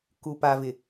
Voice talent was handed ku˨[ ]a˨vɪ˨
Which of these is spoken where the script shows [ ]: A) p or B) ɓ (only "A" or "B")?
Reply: A